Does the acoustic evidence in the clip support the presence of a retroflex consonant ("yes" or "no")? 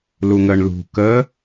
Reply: yes